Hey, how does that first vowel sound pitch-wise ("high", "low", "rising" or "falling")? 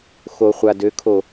low